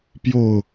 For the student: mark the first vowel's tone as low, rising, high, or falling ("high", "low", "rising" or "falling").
falling